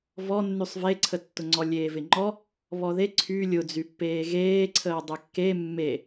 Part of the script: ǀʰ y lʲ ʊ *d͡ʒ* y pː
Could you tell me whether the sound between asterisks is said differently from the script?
yes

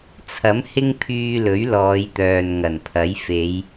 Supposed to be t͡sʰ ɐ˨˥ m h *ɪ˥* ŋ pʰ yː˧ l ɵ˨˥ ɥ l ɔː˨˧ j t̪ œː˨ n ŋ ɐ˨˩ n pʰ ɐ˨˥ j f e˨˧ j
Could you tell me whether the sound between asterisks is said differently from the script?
no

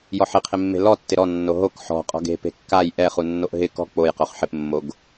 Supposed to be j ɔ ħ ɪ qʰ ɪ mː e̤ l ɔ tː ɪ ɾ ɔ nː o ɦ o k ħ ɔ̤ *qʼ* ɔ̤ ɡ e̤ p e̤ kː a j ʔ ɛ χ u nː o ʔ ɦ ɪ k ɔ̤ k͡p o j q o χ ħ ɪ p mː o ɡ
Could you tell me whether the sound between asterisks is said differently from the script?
no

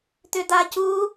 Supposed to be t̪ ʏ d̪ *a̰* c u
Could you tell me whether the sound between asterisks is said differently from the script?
yes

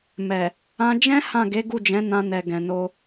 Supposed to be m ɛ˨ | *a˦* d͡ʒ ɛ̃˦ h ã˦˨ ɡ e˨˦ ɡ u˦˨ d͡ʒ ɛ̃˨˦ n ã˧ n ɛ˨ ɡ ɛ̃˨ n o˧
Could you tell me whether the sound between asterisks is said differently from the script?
yes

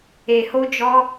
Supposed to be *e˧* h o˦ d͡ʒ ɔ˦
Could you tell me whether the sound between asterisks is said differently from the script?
no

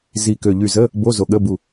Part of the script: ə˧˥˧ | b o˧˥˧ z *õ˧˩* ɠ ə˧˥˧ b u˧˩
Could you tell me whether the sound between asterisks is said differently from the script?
yes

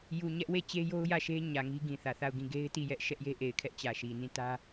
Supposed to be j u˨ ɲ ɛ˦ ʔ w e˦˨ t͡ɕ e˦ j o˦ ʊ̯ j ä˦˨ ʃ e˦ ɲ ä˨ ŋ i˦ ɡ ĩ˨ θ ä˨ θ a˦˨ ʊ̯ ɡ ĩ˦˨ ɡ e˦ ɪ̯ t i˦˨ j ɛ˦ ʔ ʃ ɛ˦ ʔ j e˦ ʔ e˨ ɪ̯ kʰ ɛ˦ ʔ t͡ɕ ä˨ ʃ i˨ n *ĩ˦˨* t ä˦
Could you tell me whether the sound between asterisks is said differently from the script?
no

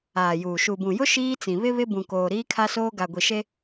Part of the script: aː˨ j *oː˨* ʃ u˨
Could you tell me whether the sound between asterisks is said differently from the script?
yes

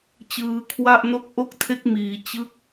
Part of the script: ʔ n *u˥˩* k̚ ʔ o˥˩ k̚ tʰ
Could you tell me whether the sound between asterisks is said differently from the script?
yes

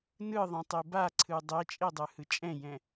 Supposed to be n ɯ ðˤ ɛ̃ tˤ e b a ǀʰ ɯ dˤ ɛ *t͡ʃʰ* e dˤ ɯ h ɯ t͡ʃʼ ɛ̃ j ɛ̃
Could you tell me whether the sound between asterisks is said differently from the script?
yes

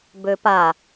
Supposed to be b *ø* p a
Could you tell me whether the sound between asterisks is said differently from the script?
no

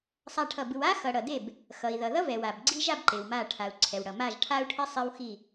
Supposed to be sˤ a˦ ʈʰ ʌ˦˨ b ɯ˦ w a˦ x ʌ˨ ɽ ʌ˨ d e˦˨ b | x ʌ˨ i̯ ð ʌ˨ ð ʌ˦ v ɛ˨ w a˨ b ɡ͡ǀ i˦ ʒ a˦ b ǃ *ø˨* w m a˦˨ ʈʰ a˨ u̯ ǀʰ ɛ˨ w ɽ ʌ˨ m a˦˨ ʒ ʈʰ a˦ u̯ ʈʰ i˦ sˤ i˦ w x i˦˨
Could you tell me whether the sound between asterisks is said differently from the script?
yes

